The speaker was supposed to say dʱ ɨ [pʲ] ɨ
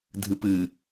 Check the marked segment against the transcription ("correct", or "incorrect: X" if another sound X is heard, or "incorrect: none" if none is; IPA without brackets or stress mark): incorrect: p